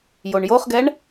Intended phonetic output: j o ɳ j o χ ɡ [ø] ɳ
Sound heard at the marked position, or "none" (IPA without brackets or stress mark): ɛ